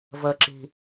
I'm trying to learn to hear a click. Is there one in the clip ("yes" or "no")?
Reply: yes